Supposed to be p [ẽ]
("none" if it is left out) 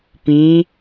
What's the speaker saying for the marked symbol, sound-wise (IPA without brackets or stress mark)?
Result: ĩ